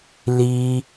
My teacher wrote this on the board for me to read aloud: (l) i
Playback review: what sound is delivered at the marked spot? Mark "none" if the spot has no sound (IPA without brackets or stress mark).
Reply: l